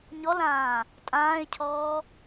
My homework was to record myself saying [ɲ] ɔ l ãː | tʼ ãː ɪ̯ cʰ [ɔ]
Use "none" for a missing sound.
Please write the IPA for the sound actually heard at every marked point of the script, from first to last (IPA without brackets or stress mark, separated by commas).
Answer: ɲ, ɔː